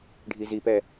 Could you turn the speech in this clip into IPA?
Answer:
ɖʱ i z i p ɛ

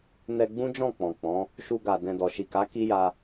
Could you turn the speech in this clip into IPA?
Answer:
n ɛ˧ ɡ͡b ũ˦ d͡ʒ ɔ̃˦˨ k͡p ɔ̃˨ k͡p ɔ̃˨˦ | ʃ u˧ ɡ a˨ d ɛ̃˨ d ɔ˨ ʃ i˨ k a˨˦ k i˦ j a˧

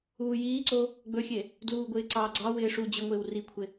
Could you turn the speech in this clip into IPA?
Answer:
uː j iː ǀ o | ɡ͡b ɵ xʲ e | d l uː ɡʷ ɪː ǀ ɑː ɡ͡ǀ ɑ w ɪː ʂ u d͡ʑ ɪ ŋʷ ɪː w r i kʷʰ ɪ

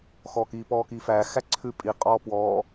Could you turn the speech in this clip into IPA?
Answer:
x ɔ k i p ɔː k iː f æː x æ ǀʰ ʉ pʼ i qʼ ɔː p w ɔː

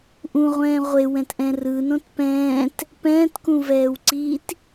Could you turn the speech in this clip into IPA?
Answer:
ʔ ũ ʁʷ ɛ̃ː ʁʷ e w ɛ̃ t ʔ ɛ̃ r ɯ n õ t p ɛ̃ː t | p ɛ̃ː t k ũ v ɛː w ǀ iː t

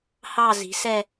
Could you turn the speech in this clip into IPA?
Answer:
h ɑ˥˧ z i̤˨˥ s ɛ˥˧

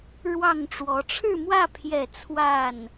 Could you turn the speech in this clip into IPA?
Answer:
ɻ w ɑ˥˨ ŋ ʈ͡ʂ w ɔ˨˦ ʈ͡ʂʰ ɻ̩˥˨ m w ä˥˨ pʰ j ɛ˥˨ t͡sʰ w a˥˨ n

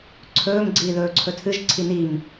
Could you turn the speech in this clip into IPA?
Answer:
ǀʰ ɵː m ɡ͡ǀ iː ð ɵː ǀʰ ɵ tʰ ɨ ʒ ǀʰ i n i m

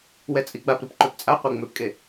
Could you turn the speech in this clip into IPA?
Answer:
w ɛ t͡sʼ i ɡ͡b a p ɾ ɯ p ǃ ø p t͡sʼ a qʷ e ŋ͡m ø p kʼ e

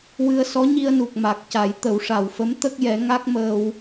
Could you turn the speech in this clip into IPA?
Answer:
w ɨ˧ ə̯ s ɔ˧˥ ɲ i˧ ə̯ n u˨˩ k̚ m a˨˩ k̚ c a˨˩˦ j t̪ ə˨˩˦ w ʂ a˨˩ w f ə˧˥ m t̪ ə˦˥ k̚ j ɛ˨˩˦ ŋ a˦˥ k̚ m əː˧ w

